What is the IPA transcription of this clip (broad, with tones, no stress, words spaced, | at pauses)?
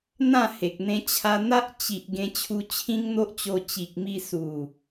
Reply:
n̪ã˥˧he˨k̚n̪ẽ˧ t͡ɕʰa˧n̪a˦ʔ t͡ɕi˨ʔ ɡẽ˧t͡ɕʰu˧ t͡ɕʰĩ˦ŋn̪o˦ʔt͡ɕo˧ t͡ɕi˨k̚mi˧su˨˩